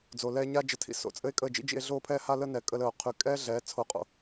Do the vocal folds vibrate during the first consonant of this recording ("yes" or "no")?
yes